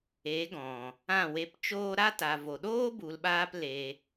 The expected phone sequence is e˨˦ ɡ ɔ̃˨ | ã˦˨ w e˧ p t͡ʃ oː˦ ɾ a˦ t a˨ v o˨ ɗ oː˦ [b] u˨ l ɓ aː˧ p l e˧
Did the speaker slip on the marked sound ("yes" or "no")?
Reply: no